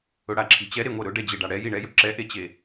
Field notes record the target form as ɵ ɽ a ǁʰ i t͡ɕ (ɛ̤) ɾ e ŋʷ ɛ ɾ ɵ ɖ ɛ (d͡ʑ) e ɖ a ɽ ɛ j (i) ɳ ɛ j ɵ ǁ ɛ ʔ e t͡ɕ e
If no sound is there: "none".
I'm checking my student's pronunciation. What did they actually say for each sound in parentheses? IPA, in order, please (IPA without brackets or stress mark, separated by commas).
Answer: ɛ, d͡ʑ, i